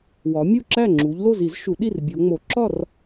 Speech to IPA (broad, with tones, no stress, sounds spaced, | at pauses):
w ɒ˨˦ mʲ u˥˨ ǁ æ˥˨ ŋ͡ǁ u˨˦ ʎ l o˥˨ z i˨˩˦ z ʃ u˨˩˦ ɗ i˥˨ r bʲ o˨˦ ŋ͡m o˨˩˦ ǁ ɒ˥˨ r